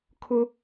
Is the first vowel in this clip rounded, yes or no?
yes